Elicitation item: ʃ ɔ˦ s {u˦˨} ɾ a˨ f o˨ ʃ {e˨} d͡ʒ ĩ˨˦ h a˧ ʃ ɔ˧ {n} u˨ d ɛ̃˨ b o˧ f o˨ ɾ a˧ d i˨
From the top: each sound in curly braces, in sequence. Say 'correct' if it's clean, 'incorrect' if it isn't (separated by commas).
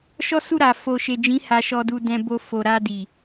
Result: correct, correct, incorrect